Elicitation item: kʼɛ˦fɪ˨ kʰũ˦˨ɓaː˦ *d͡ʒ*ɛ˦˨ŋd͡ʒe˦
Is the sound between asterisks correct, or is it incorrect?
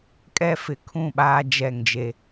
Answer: correct